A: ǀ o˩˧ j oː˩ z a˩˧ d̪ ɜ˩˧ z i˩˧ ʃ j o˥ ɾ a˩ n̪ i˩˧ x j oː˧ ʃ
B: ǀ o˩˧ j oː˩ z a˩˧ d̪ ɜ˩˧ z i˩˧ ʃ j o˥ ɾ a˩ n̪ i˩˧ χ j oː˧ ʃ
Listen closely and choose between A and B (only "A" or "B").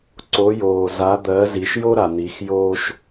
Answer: A